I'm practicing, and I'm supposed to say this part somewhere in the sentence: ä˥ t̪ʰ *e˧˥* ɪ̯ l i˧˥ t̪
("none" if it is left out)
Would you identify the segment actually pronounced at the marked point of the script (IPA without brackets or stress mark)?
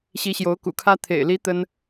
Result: ḛ˨˩